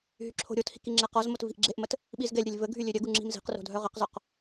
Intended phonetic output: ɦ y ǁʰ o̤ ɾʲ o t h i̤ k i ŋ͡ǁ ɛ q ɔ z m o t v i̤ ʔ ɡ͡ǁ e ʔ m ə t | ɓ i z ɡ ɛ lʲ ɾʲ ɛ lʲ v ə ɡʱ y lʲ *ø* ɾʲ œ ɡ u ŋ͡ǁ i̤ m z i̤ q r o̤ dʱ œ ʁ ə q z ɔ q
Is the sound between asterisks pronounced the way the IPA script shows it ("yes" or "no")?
yes